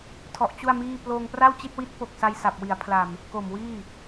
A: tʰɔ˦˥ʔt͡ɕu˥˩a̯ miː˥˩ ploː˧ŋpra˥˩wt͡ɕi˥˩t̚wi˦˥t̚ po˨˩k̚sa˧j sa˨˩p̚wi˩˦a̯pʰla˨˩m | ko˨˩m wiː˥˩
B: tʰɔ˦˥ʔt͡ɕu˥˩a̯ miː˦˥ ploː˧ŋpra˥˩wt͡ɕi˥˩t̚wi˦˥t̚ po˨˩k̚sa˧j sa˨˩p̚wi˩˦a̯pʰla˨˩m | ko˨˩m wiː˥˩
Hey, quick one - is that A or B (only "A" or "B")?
A